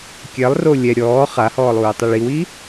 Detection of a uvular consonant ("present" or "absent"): present